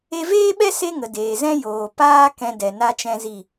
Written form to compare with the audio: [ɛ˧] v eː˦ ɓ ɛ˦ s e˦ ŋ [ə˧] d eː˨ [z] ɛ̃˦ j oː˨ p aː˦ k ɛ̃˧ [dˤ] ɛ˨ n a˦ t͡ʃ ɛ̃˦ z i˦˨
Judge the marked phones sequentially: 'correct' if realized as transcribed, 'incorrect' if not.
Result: incorrect, incorrect, correct, incorrect

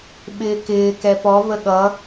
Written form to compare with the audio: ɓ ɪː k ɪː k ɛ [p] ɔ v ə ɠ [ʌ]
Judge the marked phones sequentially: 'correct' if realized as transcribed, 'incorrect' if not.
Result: correct, correct

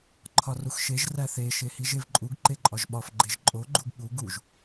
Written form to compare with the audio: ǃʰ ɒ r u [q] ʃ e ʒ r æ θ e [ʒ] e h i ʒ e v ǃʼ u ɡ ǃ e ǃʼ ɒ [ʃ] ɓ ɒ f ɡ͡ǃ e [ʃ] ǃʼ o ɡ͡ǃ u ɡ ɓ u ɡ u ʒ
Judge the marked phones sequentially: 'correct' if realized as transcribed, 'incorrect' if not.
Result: incorrect, incorrect, incorrect, incorrect

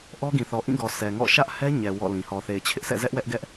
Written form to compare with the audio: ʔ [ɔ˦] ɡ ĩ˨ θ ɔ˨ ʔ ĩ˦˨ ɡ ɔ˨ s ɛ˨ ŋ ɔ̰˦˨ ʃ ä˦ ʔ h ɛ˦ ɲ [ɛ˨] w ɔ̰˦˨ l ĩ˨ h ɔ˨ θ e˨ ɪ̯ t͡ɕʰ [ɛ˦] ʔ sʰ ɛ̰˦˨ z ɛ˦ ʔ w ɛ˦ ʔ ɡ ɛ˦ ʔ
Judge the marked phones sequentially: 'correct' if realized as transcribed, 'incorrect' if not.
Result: correct, correct, incorrect

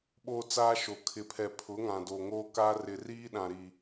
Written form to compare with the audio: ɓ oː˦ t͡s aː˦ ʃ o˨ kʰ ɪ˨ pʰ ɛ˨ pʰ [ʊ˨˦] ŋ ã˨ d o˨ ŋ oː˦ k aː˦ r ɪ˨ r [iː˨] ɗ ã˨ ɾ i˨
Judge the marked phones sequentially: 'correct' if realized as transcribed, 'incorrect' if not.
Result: correct, incorrect

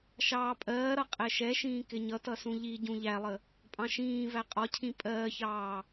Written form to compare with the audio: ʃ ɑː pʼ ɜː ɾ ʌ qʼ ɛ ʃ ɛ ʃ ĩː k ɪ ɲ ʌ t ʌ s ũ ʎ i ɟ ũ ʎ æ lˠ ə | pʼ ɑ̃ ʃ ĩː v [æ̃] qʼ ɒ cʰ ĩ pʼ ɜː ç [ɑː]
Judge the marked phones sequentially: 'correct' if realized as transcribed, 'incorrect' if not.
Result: incorrect, correct

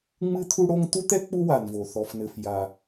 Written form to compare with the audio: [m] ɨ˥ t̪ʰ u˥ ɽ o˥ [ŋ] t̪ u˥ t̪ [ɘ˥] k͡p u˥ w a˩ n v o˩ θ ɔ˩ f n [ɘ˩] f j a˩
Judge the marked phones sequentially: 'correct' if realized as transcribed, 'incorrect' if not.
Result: incorrect, correct, incorrect, correct

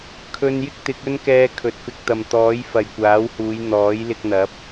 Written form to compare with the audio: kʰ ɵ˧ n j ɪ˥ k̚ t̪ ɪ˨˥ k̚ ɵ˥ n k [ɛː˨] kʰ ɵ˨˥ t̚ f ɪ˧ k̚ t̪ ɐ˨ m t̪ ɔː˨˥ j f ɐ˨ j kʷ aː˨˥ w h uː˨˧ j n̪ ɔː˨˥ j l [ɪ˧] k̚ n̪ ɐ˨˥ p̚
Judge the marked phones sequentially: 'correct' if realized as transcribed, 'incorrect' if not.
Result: incorrect, correct

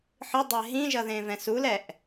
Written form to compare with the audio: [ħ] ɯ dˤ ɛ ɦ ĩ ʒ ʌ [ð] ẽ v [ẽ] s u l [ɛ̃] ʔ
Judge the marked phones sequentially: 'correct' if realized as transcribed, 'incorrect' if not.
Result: correct, correct, incorrect, incorrect

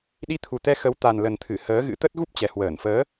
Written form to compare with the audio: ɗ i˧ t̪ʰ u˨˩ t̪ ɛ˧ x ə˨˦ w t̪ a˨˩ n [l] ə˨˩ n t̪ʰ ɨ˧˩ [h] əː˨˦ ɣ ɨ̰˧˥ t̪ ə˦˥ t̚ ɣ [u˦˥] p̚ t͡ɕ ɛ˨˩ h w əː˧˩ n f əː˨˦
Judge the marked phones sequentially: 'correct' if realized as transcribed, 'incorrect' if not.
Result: correct, correct, correct

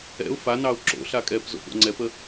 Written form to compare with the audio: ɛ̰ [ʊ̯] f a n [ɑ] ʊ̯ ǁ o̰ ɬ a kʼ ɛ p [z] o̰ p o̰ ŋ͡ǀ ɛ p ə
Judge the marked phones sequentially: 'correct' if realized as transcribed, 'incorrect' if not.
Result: correct, correct, correct

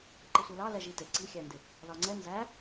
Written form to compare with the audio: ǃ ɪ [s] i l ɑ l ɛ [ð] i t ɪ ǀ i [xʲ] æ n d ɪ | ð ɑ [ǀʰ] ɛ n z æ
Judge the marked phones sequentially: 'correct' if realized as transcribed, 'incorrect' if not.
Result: incorrect, incorrect, correct, incorrect

